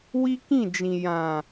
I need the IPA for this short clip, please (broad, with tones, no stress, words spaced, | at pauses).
wi˦kĩ˦˨d͡ʒĩ˨ jã˨